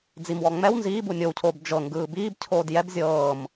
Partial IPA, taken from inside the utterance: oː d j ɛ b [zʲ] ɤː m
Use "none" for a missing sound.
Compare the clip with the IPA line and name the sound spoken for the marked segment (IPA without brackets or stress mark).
zʲ